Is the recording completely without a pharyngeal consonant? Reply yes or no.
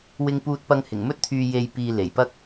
yes